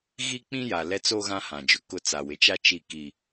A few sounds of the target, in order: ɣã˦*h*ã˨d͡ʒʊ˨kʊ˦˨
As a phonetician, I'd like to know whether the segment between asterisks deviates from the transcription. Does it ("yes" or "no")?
no